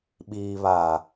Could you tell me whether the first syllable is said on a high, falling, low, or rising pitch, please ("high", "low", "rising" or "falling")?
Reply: low